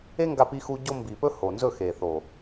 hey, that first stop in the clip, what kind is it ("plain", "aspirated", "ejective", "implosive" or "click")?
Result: plain